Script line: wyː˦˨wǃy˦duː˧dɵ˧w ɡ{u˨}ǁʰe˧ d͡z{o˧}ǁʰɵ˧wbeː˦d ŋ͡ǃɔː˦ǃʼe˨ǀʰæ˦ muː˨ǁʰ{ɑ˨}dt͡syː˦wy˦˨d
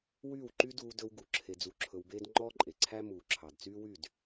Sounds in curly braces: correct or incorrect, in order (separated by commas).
correct, incorrect, correct